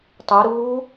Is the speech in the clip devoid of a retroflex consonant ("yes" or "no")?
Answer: yes